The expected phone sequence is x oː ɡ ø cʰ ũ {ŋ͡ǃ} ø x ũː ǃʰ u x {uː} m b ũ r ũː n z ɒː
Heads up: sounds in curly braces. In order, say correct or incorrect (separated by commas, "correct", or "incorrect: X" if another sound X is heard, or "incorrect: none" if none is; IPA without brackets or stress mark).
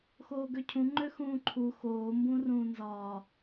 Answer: correct, incorrect: oː